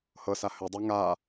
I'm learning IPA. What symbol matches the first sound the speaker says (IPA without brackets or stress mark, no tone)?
h